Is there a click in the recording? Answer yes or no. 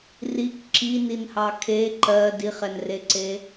yes